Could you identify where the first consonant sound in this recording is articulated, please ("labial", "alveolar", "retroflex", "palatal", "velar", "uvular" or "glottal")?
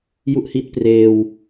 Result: palatal